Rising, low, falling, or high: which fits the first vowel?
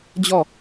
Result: falling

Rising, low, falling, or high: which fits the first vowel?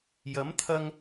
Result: rising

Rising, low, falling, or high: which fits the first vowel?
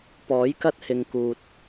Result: rising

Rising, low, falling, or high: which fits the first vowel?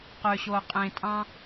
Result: low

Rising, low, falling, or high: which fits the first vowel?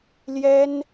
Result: high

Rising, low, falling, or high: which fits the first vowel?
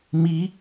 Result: rising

